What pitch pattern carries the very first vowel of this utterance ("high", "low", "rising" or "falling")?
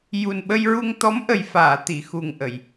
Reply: low